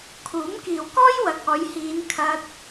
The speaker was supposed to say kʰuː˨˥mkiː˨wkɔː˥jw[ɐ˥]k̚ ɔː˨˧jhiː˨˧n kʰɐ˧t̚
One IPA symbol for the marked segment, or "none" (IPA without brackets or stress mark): ɐ˨